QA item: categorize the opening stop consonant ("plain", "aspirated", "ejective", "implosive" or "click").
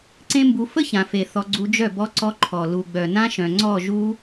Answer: click